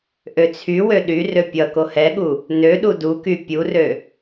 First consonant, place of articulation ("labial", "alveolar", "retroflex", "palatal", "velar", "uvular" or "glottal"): glottal